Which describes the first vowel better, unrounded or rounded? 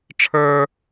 unrounded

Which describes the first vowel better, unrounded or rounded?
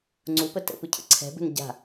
rounded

